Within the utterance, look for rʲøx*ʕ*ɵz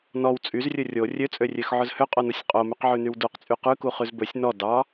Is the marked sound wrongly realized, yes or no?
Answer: no